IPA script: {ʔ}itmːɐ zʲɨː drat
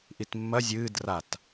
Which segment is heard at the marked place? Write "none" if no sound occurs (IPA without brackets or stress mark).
ʔ